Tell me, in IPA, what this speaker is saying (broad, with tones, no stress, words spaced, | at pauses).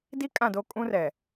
di˦ kʼã˦˨do˦ kʼũ˦rɛ˨